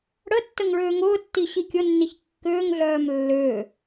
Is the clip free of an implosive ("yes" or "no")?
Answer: yes